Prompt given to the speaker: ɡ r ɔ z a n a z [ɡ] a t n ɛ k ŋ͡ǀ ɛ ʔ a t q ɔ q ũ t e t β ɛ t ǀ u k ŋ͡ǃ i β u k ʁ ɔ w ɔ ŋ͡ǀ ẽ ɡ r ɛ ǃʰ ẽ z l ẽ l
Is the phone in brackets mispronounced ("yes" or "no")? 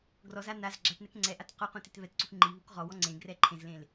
yes